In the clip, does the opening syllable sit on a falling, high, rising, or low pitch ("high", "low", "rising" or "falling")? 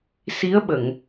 rising